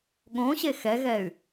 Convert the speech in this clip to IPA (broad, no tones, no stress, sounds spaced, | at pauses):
ɠ õ ɕ e x ɛ ɣ ɛ y̯